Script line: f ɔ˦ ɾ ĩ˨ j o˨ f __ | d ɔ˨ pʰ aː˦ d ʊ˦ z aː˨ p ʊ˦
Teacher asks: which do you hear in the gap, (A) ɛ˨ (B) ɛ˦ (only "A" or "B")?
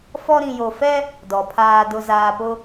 B